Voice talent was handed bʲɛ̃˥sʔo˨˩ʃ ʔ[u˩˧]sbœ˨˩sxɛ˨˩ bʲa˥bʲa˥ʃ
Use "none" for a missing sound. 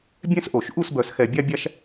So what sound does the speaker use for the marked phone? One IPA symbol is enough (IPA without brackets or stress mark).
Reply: u˥˨